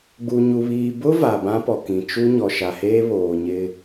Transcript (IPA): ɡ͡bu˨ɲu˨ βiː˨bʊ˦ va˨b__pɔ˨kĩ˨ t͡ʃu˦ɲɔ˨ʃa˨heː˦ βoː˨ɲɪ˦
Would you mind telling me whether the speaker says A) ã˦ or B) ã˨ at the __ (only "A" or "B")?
A